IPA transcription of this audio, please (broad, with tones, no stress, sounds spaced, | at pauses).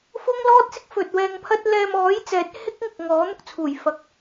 f ʊ˥ ŋ l ɔː˥ t̚ s ɪ˥ k̚ f ɵ˨ t̚ w ɛː˧ ŋ pʰ ɐ˥ t̚ l ɛː˧ m ɔː˨˥ j t͡s ɛː˨˥ t̚ h ɪ˥ k̚ ŋ ɪ˨ k̚ ŋ ɔː˨˥ n̪ ʊ˧ k̚ t͡sʰ uː˨˩ j f ɐ˨˥ k̚